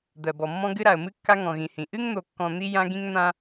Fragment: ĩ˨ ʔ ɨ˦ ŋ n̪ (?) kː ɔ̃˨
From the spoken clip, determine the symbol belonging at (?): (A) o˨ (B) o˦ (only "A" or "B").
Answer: A